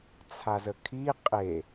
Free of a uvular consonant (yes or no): no